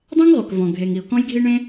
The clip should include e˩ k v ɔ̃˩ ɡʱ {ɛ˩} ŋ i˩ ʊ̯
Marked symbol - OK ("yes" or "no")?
no